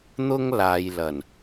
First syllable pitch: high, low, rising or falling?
high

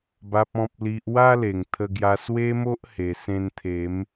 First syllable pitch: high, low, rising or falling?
low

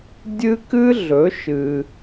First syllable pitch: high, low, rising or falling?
high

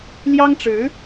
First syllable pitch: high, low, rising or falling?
high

